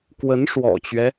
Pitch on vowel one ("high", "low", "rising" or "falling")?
rising